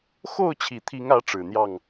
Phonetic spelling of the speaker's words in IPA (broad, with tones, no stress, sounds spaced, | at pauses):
x o˥˨ ʊ̯ t͡ɕʰ i˨˩ t̪ʰ i˨˦ ŋ ä˨˦ ʈ͡ʂ ɻ̩˨˩ n̪ j ɑ˥˨ ŋ